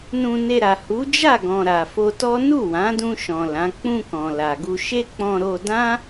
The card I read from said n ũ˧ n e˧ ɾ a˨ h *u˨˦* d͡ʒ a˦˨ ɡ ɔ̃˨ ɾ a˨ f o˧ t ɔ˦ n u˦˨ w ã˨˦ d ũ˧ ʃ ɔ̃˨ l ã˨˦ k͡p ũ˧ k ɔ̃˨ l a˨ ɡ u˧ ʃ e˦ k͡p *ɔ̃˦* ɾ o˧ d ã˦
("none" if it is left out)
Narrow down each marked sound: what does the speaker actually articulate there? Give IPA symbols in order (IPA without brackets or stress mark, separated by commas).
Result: u˨˦, ɔ̃˧